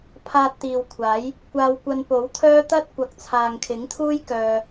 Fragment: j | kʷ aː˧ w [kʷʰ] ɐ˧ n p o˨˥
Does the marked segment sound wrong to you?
yes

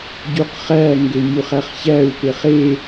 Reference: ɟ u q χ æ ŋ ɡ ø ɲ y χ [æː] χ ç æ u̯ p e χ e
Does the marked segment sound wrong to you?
yes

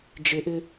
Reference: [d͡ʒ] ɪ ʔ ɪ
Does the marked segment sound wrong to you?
no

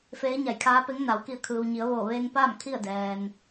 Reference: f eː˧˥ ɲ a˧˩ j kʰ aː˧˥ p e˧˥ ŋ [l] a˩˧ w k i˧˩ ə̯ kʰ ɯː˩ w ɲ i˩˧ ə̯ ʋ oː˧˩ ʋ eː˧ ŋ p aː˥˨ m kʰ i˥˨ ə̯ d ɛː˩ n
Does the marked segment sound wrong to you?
yes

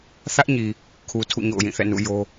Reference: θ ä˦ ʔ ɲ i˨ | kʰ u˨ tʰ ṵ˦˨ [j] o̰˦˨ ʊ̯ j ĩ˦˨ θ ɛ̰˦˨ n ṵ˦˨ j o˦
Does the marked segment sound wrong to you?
yes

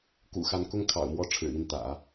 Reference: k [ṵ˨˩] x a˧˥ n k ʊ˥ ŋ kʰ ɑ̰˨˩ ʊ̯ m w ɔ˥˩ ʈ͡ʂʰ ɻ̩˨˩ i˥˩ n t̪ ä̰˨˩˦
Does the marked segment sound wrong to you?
no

